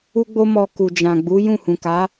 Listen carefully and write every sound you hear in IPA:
u˦ɡ͡bo˦mɔ˧ ku˨d͡ʒã˨ɡ͡bu˨˦ jũ˦˨hũ˨ka˨˦

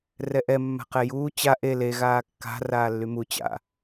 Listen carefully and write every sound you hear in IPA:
rɛʔɛ mːa̤qɛjuː t͡ɕa ʔe le ɣaːkːa̤ raːlːymu t͡ɕa̰

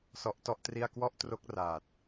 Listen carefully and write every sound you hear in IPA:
sɔ˦˥ʔtɔ˥˩ʔtri˥˩a̯ kwɔ˥˩ʔ tro˦˥k̚ raː˨˩t̚

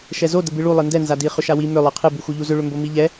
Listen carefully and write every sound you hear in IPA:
ʃɛzo dəbɨɭu lˠɨndɛ nzadi χʏʃawi mʏ lˠɛqʰɨ buxuʎuzʏ ɭʏmbomiʎɛ

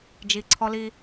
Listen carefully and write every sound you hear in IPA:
d͡ʒi˨ ǀʰɔ˦li˦

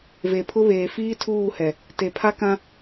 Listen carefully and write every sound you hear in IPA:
ve˨pʰʊ˦βeː˨ fiː˦tʰuː˦˨hɛ˨ | te˨pʰa˦kã˦

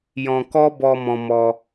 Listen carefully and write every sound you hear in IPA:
jɔ̃˧ kɔ˦bɔ˧ mɔ̃˧mɔ˧

